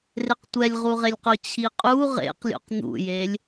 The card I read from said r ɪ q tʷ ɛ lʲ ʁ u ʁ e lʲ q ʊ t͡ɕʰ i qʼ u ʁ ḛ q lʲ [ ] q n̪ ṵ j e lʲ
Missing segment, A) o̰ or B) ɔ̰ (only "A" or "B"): A